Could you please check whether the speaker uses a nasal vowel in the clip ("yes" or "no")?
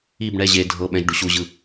yes